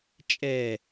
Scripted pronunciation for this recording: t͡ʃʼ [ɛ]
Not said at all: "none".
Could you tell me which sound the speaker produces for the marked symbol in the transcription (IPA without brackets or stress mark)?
ɛ